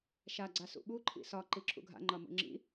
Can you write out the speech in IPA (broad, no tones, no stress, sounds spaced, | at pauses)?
ʃ a ɡ͡ǀ a s ṵ ɓ u ǃʰ ḭ s ɒ ǃ i ǁʰ ṵ ɡʱ a̰ ŋ͡ǃ ɒ m ṵ ŋ͡ǁ ḭ